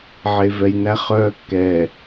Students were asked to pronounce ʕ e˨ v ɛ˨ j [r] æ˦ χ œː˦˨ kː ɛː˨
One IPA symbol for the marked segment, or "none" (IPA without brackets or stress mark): n